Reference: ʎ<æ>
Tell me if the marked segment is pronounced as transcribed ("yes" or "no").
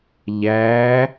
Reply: yes